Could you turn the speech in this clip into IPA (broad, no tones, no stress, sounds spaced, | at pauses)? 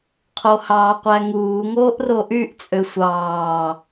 qʰ o h ɑː qʷ æ ŋ uː ŋ oː ʔ r o ʔ y ʔ t͡sʼ ø sʷ ɑː